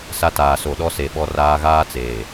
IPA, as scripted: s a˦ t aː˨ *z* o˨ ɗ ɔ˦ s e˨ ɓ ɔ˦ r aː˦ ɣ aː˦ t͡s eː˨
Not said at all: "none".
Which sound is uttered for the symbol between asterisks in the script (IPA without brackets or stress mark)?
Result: s